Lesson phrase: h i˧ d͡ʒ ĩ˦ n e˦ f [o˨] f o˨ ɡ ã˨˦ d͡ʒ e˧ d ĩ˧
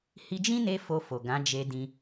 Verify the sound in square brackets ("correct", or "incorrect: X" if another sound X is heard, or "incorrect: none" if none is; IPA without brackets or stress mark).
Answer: incorrect: o˧